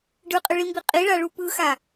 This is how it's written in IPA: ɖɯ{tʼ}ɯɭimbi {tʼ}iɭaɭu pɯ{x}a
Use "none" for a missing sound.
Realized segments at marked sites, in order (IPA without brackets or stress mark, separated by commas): qʼ, qʼ, x